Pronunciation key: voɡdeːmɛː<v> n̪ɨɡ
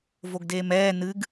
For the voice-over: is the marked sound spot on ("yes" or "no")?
no